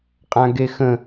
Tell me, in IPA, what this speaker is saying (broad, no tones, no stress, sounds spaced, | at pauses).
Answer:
qʼ ã ɡ e x ə̃